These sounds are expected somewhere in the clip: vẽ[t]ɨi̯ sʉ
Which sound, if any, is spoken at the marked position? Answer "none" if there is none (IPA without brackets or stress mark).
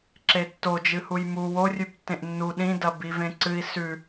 ǀ